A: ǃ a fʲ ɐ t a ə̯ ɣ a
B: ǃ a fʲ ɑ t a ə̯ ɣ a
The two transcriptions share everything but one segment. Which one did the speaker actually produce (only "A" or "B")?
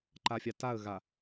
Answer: B